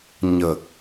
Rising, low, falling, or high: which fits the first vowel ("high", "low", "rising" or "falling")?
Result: low